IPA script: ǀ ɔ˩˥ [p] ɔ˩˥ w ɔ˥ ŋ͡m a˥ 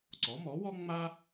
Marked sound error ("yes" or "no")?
yes